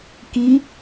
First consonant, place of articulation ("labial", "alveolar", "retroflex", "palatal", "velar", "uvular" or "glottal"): velar